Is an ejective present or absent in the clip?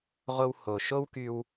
absent